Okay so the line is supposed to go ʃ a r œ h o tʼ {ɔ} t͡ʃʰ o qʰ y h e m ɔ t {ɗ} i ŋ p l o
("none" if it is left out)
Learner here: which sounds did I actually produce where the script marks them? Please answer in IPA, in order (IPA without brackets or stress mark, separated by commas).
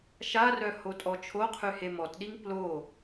ɔ, ɗ